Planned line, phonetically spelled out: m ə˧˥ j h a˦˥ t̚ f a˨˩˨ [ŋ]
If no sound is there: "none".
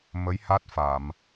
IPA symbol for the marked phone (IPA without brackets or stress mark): m